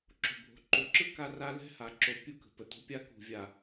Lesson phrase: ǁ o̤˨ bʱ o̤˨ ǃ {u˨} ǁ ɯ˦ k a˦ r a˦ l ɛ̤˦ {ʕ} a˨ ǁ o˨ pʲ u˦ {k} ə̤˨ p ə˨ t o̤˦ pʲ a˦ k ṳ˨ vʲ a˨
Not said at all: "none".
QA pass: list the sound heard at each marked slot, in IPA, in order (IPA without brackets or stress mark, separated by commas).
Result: u˨, h, k